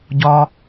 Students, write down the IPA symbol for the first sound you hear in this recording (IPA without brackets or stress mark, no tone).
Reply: ɟ